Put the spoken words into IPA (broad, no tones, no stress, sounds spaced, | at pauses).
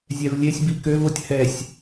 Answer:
zʲ ɛ v lʲ e sʲ b i k ø v o tʲ h ɛ sʲ